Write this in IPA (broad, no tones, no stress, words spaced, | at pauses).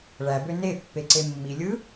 ɭæbø ne pːeǀemːilʲɯ